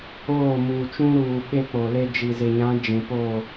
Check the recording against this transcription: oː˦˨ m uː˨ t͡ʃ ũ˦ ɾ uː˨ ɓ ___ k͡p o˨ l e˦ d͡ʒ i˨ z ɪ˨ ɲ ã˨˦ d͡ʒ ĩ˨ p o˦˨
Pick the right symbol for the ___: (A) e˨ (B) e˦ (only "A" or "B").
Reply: B